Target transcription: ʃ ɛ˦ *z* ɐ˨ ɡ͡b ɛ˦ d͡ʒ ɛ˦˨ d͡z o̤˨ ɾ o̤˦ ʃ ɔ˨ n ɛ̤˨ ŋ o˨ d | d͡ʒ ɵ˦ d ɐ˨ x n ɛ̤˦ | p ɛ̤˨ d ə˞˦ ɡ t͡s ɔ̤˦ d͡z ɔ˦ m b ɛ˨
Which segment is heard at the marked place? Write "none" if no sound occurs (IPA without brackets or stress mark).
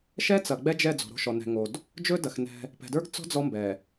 t͡s